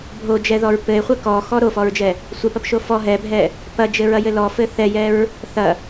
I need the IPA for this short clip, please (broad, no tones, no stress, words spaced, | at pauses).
bʱod͡ʒɛðɔɹ pɘe̯χʷɘ kɔxɔ ɾofɔɹd͡ʒɛ | sʷɛpɐpʃo fɔ ɦɛbʱɛ | pɐd͡ʒɘɹɐjɘ lɔfɘ θɛjɛɹ | θɐ